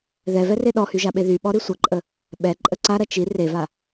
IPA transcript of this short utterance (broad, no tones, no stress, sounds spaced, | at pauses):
ð ɛ v ɛ r e ɗ ɔ h y ʒ a ɓ e ð y ɓ ɔ ɾ i sʷ ɐ ǃʼ ə | ɓ ɛ ǃʼ ə ǀ a ɾ ɐ t͡ʃ i r e v a